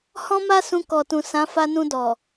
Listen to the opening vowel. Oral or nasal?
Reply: nasal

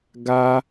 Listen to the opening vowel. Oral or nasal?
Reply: oral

